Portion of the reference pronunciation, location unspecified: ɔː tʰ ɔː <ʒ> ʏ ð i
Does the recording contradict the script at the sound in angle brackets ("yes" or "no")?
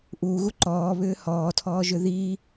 no